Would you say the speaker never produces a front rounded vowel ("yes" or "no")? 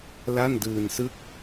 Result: yes